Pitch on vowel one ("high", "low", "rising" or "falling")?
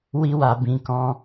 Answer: high